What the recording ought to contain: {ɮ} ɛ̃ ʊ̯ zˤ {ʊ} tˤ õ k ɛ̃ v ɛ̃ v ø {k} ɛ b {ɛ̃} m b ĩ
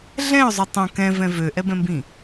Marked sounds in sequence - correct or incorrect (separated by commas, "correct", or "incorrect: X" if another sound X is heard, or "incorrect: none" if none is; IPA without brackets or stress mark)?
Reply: correct, incorrect: u, incorrect: ʔ, correct